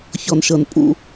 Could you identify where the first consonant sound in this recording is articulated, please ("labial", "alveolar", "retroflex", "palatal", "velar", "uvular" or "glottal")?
palatal